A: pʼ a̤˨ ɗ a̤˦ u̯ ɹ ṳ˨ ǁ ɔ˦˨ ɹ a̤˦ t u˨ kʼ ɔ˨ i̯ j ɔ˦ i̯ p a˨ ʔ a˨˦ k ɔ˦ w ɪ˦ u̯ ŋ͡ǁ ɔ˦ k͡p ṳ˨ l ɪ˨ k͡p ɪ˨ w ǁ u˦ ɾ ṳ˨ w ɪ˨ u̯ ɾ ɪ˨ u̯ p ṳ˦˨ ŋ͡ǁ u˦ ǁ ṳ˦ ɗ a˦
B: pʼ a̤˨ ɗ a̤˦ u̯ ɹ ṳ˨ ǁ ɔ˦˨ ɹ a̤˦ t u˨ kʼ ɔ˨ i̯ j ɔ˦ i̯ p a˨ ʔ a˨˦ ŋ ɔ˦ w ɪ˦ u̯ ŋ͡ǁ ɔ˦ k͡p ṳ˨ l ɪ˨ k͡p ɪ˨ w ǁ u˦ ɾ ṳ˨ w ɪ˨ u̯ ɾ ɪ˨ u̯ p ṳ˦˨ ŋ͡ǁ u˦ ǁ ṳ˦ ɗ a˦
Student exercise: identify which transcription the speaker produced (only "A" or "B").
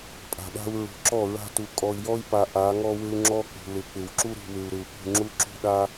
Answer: B